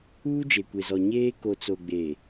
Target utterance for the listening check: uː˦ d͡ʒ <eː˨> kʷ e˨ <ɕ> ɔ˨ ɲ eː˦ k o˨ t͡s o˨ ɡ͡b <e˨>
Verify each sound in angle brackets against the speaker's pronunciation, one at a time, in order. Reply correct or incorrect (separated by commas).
incorrect, incorrect, correct